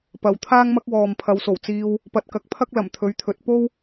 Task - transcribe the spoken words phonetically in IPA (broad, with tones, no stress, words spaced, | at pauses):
pɐ˨˧wt̪ʰaː˥ŋmɐ˥k̚wɔː˨m pʰɐ˨˧wso˨˩w t͡siː˧w | pɐ˨t̚kɐ˨˥k̚pʰɐ˥k̚ lɐ˨˩mt̪ʰɵ˨˥ɥt̪ʰɵ˨˥t̚ po˥w